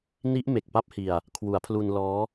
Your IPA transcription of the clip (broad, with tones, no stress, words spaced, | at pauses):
ni˦˥ʔ me˨˩k̚pa˥˩p̚hi˧a̯ | kʰwu˩˦a̯pʰlu˧nlɔː˦˥